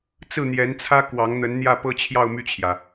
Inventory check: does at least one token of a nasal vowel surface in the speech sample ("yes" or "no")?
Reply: no